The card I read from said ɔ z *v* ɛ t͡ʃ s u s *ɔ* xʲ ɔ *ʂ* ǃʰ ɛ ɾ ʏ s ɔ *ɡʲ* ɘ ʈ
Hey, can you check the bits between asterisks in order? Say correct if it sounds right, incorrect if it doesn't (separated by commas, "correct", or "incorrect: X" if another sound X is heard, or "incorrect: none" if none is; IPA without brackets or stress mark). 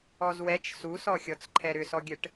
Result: incorrect: w, correct, incorrect: t͡s, correct